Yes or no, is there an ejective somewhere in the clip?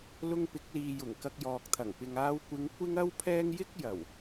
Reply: no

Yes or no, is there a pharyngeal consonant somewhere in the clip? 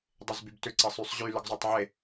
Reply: yes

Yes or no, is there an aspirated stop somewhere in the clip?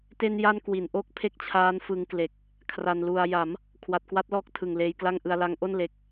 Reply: yes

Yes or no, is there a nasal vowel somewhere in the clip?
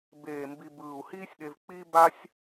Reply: no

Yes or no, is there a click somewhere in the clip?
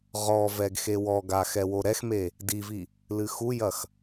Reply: no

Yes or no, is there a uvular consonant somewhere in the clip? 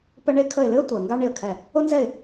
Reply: no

